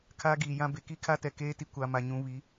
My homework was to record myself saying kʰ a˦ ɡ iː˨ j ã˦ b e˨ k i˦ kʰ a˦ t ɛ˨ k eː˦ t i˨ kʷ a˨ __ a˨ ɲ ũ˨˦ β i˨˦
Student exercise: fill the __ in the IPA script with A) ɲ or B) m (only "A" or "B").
B